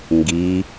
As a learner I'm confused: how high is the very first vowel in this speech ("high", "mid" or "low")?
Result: high